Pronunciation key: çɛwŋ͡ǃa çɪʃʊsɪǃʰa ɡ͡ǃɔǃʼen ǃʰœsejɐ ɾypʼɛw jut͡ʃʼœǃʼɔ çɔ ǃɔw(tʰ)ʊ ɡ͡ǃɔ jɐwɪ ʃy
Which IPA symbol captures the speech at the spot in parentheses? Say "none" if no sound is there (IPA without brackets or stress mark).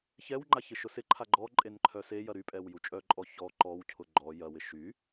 cʰ